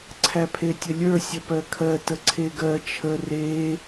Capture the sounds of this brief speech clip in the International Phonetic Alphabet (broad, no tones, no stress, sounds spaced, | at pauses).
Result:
ǀʰ æ pʰ e tʲ ə lʲ ə˞ sʲ ə p ɜ kʰ ɜ t ə ǀʰ e ɡ ɜ t͡ʃʰ ə r e